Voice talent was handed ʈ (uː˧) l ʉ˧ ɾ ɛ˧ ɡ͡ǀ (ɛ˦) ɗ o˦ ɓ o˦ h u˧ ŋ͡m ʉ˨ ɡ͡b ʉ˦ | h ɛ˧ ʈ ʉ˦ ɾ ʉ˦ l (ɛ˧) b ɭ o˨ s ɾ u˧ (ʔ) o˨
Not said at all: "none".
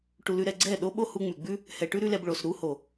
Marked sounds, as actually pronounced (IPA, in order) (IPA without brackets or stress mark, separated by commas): u˧, ɛ˦˨, ɛ˧, h